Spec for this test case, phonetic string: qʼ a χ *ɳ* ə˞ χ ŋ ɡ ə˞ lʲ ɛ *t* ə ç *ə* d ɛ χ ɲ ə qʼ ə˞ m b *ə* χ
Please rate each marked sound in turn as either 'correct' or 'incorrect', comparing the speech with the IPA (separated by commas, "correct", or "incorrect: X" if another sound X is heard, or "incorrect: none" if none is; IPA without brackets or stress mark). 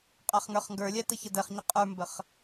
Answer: incorrect: ŋ, correct, correct, correct